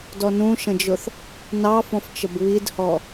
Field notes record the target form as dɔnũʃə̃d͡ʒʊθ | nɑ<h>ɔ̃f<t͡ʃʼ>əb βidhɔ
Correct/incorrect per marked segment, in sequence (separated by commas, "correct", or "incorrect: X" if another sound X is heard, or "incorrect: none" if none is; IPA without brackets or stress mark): incorrect: f, incorrect: t͡ʃ